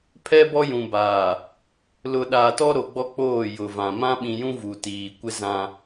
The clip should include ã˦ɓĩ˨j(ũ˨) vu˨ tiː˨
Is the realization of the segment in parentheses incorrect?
yes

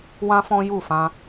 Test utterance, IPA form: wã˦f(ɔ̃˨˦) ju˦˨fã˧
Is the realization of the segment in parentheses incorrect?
yes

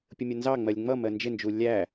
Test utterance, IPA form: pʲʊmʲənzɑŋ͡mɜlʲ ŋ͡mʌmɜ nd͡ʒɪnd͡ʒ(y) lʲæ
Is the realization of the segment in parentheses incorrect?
yes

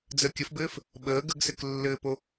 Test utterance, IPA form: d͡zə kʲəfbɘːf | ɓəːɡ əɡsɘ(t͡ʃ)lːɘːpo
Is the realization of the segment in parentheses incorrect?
yes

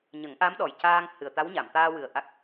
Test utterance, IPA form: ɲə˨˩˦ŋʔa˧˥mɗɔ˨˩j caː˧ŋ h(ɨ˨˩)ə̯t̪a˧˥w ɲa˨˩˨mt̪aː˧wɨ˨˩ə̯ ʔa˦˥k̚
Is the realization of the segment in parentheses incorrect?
no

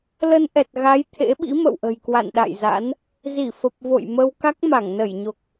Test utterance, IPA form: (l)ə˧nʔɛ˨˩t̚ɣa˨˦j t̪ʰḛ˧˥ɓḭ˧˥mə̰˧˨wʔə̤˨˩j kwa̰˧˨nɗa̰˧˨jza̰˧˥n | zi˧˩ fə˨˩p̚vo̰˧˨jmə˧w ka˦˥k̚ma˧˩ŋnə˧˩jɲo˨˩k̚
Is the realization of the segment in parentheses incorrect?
no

